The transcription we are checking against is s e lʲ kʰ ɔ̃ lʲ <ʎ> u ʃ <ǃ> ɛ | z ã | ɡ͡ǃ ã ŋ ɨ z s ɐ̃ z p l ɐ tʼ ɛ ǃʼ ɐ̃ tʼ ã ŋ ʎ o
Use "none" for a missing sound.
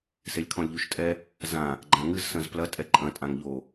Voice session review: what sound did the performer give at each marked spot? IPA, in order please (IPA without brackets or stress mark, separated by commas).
ʎ, tʼ